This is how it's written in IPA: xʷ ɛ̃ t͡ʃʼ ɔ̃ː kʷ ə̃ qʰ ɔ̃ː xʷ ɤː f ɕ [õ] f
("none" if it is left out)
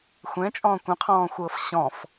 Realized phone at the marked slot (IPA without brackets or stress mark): ɔ̃